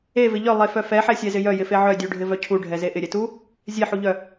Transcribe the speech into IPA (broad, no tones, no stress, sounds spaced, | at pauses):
e v ɪ ʎ œ lˠ e f œ f ɛ ħ ɛ sʲ ɛ z ɪ j œ j ɪ f e ʕ œ dʲ u ɖʱ ɪ v œ cʰ u ɖʱ ɛ z e ʔ ɪ ɾʲ ɛ t u | zʲ e ħ u ʎ œ